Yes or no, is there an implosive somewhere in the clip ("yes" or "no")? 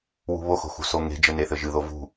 no